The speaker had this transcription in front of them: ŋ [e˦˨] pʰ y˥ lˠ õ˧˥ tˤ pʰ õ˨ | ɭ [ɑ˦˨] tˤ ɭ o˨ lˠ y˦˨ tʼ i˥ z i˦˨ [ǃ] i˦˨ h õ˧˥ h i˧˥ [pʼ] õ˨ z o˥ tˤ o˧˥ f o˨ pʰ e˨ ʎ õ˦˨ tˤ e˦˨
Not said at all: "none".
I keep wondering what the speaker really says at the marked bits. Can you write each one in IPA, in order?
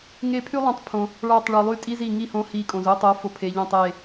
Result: e˦˨, ɑ˦˨, ŋ, kʼ

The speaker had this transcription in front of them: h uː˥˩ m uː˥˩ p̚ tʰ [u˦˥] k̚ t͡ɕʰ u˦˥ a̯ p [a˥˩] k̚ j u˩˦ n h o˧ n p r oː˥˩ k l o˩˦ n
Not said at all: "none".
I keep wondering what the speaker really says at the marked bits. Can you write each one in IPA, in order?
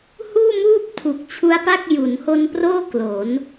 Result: u˨˩, a˥˩

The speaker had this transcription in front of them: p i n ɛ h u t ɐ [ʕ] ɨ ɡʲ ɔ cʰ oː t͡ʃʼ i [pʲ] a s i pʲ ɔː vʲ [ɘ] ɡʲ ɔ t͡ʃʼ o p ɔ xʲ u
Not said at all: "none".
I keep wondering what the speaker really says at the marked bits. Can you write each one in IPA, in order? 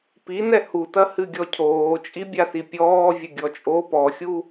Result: h, bʲ, ɘ

